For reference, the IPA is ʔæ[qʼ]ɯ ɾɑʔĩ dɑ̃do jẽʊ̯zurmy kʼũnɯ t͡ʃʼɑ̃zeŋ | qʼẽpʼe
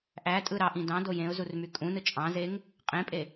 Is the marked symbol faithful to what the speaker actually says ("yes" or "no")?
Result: no